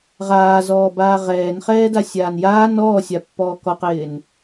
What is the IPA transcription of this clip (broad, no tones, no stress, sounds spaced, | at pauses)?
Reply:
ʁ aː z ɔː b aː ʁ ɛː n χ ɛː d a sʲ aː n j aː n ɔː sʲ a pː ɔː k ɔ q ɪː n